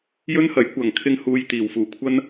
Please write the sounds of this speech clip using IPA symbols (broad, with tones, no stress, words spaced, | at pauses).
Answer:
jɵ˥nhɐ˨˥j kʷɐ˨˩ŋkʰɪ˧ŋ huː˧j t̪iː˨˩wfuː˨˩ kʷʰɐ˥n